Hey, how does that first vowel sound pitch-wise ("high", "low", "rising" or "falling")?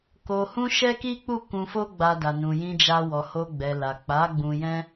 low